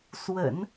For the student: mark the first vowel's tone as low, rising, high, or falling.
low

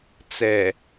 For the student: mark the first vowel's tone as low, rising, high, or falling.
low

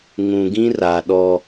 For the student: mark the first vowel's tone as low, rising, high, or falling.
low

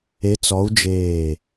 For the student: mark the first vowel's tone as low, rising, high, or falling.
rising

